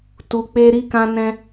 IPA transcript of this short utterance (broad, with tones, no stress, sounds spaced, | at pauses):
t u˧ k͡p e˦ ɾ i˦ k ã˦ n ɛ̃˦